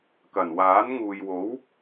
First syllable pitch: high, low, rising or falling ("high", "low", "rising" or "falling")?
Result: low